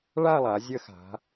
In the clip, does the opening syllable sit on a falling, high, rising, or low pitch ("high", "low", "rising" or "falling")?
falling